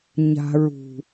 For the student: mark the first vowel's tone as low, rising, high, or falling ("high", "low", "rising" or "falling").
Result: low